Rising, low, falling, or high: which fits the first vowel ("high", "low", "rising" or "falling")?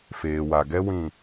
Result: low